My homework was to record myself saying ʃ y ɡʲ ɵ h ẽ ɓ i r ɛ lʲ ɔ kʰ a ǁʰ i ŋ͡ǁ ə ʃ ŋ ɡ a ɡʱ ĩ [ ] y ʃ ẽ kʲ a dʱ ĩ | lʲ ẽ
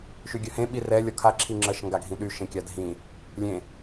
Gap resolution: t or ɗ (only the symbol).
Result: ɗ